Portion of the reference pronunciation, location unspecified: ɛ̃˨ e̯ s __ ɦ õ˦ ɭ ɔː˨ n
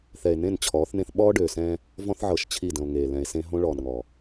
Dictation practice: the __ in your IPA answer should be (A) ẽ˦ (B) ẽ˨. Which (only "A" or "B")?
A